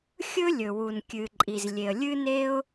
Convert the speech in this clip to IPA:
xʲ ɵ˥ lʲ ɵ˩ w u˩ n kʲ ɨ˩ ǃʼ i˩ z lʲ e˩ ə̯ lʲ ɨ˥ n e˥ ʊ̯

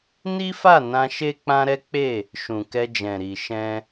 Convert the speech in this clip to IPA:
n i˦ f a˦˨ n ã˧ ʃ e˦ k͡p ã˦ ɾ ɛ˦ k͡p e˦˨ | ʃ ũ˨ k ɛ˧ d͡ʒ ɛ̃˨ ɾ i˨ ʃ ɛ̃˧

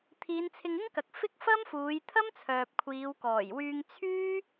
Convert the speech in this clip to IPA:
t̪ʰ iː˨˧ n t͡sʰ ɪ˧ ŋ ɪ˥ ŋ k ɐ˨ k̚ f ɪ˥ k̚ f ɐ˥ m f uː˨˧ j t̪ʰ ɐ˥ m t͡sʰ œː˨ p̚ kʷʰ iː˨˧ w k ɔː˨˩ j w yː˧ ŋ t͡sʰ yː˥

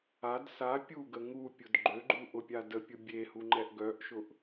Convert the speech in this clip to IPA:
a d s a pʲ u ɡ ə ŋ u pʲ ʊ d ɡ͡ǃ ø ɡ͡ǃ u ʔ ʊ pʲ a d ə pʲ ʊ bʲ e h u ŋ͡ǃ ɛ ʔ ɡ œ ʔ ʃ ʊ ʔ

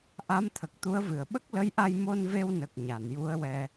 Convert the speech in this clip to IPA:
ʔ a˧˥ m t̪ʰ ə˨˩ k̚ t̪ u˧˥ ə̯ v ɨ˨˩ ə̯ ɓ ə˦˥ k̚ l ə˧˥ j ʔ a˧ j m o˧ n v e˧ w n ə˨˩ k̚ ɲ a˨˩˨ n j u˧˥ ə̯ w ɛ˧

